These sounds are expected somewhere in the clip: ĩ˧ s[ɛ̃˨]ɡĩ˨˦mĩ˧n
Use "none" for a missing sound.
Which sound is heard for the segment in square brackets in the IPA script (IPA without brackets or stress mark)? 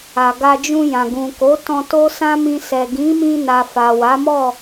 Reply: ɛ˨